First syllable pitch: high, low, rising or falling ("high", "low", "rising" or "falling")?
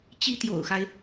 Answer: high